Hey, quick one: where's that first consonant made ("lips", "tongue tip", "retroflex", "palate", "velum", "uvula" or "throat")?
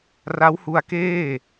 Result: tongue tip